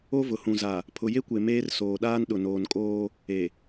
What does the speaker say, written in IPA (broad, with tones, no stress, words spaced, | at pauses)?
o˦vʊ˨hũ˨za˨ | pʰʊ˨je˦kʷe˨ meː˦r soː˨ɗaː˦n ɗʊ˨noː˨nkʼoː˦ | e˨